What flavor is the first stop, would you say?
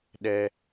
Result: implosive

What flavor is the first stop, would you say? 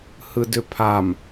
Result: plain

